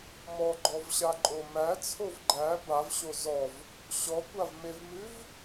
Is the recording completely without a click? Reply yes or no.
no